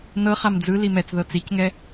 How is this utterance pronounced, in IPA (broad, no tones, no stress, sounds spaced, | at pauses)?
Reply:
n ɤ χ a m d͡z ɯ l i m ɛ t͡s ð ɤ t͡s i c ŋ ɛ